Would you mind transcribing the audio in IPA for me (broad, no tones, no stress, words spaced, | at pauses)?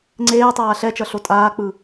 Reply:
ŋ͡ǀeː tˤaːɬɛt͡ʃʌ ɬotʼaːk͡pɯ